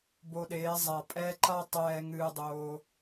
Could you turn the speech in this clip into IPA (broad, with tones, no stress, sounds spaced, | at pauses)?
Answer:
b o˧ ɗ eː˨˦ zˤ a˨ pʼ ɛː˧ ǃ a˦ tˤ ɛː˧ ŋ ɨː˧ dˤ oː˧